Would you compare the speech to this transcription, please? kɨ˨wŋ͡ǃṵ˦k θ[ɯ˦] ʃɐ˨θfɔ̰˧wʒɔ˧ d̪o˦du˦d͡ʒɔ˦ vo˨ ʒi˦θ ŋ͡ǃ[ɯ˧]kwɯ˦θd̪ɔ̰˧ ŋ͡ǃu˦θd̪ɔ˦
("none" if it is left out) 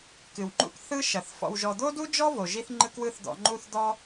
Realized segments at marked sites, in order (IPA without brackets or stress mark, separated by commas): ɯ˦, ɯ˦